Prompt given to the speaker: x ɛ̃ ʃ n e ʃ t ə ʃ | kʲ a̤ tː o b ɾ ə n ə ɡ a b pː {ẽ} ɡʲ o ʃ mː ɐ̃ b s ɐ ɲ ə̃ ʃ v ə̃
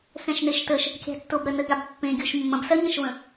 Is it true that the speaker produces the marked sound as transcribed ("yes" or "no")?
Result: yes